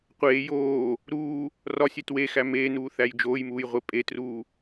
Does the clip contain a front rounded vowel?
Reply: no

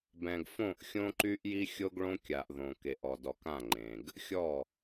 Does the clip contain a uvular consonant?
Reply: no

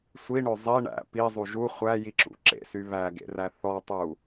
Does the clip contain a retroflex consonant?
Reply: yes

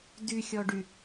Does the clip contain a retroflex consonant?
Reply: yes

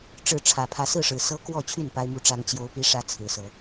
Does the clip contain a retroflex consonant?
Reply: yes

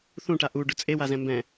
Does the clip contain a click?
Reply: no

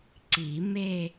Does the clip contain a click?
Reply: yes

